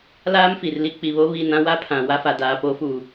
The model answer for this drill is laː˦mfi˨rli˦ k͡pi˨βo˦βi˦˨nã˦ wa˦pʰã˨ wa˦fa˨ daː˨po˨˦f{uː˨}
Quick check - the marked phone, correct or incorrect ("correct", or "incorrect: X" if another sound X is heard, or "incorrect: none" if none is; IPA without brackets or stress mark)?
correct